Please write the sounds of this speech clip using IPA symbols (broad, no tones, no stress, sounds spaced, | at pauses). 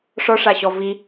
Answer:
ʂ ɔ ʂ a ɕ ɔ v i